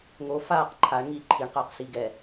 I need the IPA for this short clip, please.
ŋo faːq ǃʰaɳ ŋiːǃʰiɳqəːq siɡɛ

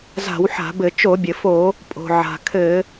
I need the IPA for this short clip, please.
za̤˧˩˧wħa̤˧˩˧bɘ˧˩˧ t͡ʃo˧˩˧bʲɘ˩fo˧˩˧ | pʼo̤˩ʕa̤˩ kʰɘ˧˩˧

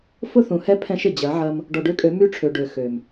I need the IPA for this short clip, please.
fʊ˦θũ˨hɛ˦ pʰɛ̃˦ʃɪ˨ d͡ʑɐ˨˦ʕɐ˦m | ɖɔ˨ɖø˦kʼø˨˦ my˦ʈ͡ʂʰø˨ɖø˨ xø˨m

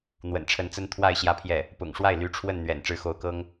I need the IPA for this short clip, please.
n̪wə̰˨˩nʈ͡ʂʰə˧˥nt͡sə˥n t̪ʰwa˥˧ɪ̯ ɕjä˥˧pʰjɛ˥˩ | pʊ̰˨˩ŋʂwa˥˩ɪ̯ ly˧˥ʈ͡ʂʰwə˥˩n n̪ɥɛ̰˨˩n ʈ͡ʂɻ̩˧˥xo˧˥ʊ̯kɤ˥ŋ

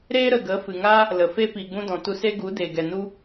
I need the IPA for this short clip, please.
ɾeː˦ ɾə˨ɡə˨˦ fɨ˨ŋaː˦ | lə˨ fe˧piː˨ɡ͡bũ˧dɔ̃˨ tu˧se˦ ɡu˨˦deː˨ɡɛ˨ nu˦

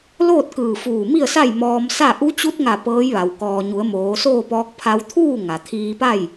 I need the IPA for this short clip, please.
loː˥˨t̚kɯː˧˩ fuː˧˩mi˥˨ə̯sa˥˨j mɔː˧msa˥˨ ʔu˧˥t͡ɕu˧˥t̚ŋa˧˩ pɤː˧˥jʋa˩w kɔː˩ɲu˩˧ə̯ moː˩˧soː˥˨pɔː˧˥k̚ pʰa˧wt̪ʰuː˥˨ ŋa˩t̪ʰiː˧pa˥˨j

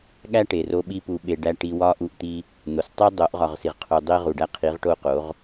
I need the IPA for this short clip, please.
ɠæ˦ʈe˨ro˧ɓi˧ pu˧ɓe˧ɖæ˦ ʈi˧wɒ˦ ʔu˦ʔt̪i˦ | n̪o˨stˤe˦ dˤo˨˦ʔʁɒ˨ʁsi˨ʁ qʰu˨dˤi˧ ʁu˨ɖæ˧qʰi˨˦ʁ ʈo˧ qo˨˦ʁ

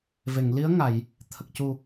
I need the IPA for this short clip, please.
ve˨˩˨ŋli˧˥ə̯ŋa˨˩˨j | t̪ʰə˨˩k̚cu˨˩

